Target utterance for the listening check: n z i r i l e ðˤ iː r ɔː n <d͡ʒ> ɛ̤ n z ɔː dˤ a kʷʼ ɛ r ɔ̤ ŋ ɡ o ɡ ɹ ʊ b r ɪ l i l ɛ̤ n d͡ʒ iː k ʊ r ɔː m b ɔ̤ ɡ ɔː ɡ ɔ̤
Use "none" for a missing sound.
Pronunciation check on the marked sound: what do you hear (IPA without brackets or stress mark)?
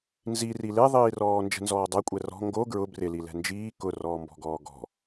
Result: d͡ʒ